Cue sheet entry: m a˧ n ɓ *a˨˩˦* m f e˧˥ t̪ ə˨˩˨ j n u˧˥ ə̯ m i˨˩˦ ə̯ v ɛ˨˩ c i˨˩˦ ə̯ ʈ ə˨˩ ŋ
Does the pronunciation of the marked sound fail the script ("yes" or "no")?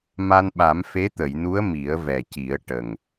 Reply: no